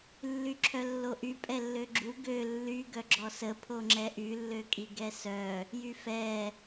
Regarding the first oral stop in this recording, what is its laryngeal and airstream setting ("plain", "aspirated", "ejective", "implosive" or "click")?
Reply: click